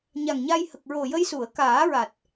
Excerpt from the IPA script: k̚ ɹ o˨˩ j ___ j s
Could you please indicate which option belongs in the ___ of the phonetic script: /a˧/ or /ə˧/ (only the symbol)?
ə˧